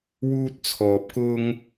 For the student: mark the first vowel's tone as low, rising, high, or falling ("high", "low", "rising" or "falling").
high